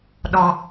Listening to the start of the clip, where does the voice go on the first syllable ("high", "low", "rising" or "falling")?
low